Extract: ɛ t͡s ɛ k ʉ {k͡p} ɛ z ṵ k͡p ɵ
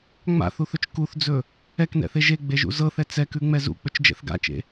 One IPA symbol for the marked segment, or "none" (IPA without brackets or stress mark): ŋ͡m